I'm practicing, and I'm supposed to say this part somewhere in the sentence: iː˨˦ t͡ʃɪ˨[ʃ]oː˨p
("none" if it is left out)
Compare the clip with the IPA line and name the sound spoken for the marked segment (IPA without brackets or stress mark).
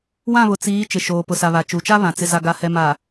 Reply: ʃ